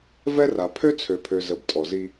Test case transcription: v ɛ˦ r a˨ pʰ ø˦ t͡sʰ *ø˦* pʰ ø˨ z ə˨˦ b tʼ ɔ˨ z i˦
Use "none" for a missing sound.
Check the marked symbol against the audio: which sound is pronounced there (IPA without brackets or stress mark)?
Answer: ø˨